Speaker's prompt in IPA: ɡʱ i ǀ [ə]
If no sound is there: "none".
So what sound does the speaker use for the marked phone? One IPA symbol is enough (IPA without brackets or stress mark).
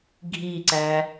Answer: æ